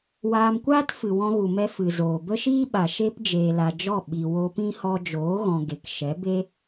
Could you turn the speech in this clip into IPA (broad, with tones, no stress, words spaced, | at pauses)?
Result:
waː˧mkʷaː˦t fɨ˨wɔ̃˧ɣu˨mɛ˧ fɨ˨zoː˨ bə˦ʃiː˦ɓa˨ ʃe˦p d͡ʒeː˨la˨d͡ʒɔ˦˨ ɓi˨ wo˧pĩ˦ hɔ˧d͡ʒoː˨˦ɣɔ̃˨ ɡe˨kʃɛ˨˦be˦